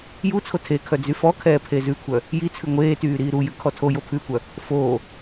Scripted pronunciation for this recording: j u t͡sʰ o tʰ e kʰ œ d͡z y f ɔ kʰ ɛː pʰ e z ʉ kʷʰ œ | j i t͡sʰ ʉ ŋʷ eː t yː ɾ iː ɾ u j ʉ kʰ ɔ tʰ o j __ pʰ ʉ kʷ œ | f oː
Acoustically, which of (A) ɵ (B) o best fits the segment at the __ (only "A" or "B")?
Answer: B